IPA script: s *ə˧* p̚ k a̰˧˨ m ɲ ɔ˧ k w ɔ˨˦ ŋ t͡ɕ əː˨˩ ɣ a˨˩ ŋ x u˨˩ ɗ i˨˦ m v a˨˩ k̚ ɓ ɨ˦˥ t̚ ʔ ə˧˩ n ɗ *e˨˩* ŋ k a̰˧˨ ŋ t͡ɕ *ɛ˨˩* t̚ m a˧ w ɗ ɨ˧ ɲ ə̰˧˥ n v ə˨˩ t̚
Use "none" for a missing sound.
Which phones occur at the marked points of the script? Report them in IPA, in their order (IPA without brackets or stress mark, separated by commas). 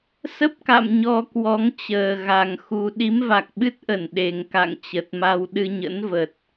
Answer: ə˦˥, e˨˩, ə˨˩